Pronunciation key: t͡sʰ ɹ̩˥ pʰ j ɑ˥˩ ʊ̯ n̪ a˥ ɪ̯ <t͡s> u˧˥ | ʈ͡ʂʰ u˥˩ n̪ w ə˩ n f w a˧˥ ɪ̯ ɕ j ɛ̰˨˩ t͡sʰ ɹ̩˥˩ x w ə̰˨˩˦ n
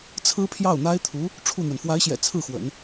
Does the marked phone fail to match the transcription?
yes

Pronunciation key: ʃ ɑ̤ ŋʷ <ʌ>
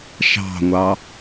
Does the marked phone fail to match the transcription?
yes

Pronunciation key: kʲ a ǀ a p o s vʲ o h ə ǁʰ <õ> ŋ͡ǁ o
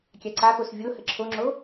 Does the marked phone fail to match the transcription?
yes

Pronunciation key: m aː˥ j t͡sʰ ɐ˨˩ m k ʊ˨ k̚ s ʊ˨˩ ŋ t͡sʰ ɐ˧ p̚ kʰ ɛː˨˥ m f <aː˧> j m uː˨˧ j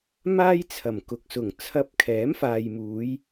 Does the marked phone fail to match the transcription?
yes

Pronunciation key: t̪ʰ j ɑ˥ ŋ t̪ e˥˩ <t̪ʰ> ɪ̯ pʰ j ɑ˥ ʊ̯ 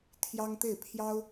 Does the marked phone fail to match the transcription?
yes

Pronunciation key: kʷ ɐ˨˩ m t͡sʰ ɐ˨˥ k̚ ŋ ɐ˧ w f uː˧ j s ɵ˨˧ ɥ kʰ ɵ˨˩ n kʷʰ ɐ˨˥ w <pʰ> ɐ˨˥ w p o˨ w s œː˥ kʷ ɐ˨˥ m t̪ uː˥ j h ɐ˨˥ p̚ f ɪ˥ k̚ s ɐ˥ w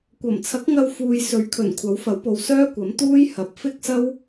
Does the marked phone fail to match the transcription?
yes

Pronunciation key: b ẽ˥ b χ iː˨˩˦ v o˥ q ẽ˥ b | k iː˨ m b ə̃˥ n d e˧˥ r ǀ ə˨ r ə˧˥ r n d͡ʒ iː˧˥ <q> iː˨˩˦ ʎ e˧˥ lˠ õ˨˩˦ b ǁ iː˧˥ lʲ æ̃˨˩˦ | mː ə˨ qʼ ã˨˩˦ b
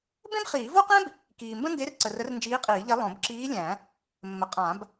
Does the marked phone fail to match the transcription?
yes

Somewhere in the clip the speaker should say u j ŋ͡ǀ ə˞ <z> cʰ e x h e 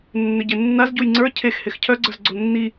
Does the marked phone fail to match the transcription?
yes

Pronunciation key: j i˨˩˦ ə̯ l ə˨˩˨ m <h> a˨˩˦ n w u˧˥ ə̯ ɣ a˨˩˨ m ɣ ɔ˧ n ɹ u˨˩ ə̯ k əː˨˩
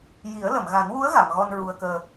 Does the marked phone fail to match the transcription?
yes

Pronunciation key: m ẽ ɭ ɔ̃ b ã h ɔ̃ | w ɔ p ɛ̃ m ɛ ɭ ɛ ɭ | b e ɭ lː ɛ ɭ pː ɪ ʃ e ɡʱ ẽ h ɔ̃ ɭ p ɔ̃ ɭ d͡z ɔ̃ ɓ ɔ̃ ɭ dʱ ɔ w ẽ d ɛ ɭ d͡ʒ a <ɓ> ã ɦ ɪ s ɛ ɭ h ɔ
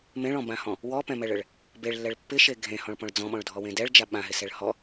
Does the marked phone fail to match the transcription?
no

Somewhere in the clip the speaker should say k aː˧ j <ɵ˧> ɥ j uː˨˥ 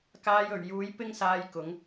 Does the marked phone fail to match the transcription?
yes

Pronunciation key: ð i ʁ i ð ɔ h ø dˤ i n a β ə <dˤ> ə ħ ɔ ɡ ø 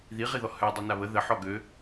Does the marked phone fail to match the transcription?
yes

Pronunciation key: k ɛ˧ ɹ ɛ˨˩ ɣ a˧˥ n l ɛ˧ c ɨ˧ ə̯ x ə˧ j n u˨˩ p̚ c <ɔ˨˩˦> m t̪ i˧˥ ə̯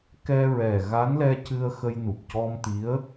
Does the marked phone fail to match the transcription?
yes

